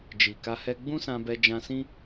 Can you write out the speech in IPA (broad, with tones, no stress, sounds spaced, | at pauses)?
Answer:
d͡ʒ i˨ k a˧ h ɛ˧ ɡ͡b ũ˦ s ã˧ b ɛ˧ d͡ʒ ã˧ s ĩ˦